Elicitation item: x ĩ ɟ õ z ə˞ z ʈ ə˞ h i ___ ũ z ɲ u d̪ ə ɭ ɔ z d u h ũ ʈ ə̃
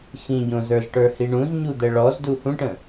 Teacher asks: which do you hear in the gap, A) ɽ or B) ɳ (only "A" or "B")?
B